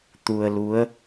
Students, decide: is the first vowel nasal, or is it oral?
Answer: oral